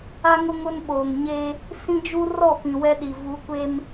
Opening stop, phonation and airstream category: implosive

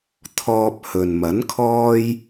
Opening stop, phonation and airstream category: aspirated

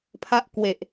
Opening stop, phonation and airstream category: aspirated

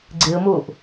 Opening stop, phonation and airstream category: click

